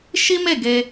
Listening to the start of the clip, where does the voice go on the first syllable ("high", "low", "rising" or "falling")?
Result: high